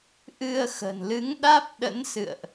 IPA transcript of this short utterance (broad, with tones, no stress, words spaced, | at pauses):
ʔɨ˧ə̯ xə̤˨˩nlɨ˨˦ŋ ɗaː˦˥p̚ɗə̰˧˥n sɨ̰˧˨ə̯ʔ